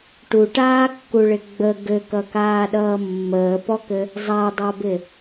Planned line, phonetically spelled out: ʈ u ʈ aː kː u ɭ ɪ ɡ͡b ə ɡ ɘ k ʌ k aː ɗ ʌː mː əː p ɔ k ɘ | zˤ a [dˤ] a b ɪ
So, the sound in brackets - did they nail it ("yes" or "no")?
yes